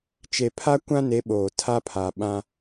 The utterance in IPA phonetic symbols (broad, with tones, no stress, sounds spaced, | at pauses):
t͡ʃ e˨ pʰ a˦ kʷ ã˦ n e˨˦ ɓ oː˨ tʰ a˦ pʰ a˨ ɓ ã˦